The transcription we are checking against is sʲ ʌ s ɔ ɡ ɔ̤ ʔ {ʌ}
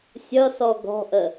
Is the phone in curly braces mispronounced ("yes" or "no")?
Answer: yes